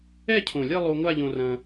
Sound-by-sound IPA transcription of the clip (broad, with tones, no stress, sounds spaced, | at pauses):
ɛ˥˧ cʰ õ˨˩ lʲ ɛ˥˧ lˠ o˧ ŋʷ a˥˧ ʎ õ˧ r ɐ̃˧